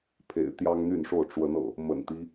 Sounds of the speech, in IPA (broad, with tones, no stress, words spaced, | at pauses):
pʰḛ˨˩ɪ̯t̪jɑ˦ŋn̪y˥˨nʂo˥˨ʊ̯ ʈ͡ʂwə˨˦nɤ̰˨˩ | mə̰˨˩nt̪i˦